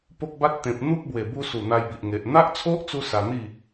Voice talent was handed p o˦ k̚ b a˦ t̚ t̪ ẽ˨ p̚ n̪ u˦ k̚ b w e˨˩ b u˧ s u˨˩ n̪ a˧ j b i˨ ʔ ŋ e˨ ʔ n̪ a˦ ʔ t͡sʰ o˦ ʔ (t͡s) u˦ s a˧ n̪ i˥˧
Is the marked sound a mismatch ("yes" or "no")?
no